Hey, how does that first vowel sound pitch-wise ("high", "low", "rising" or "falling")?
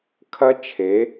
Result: high